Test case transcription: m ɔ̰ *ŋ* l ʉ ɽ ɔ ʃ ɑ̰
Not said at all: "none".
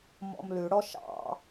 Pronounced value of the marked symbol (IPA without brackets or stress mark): m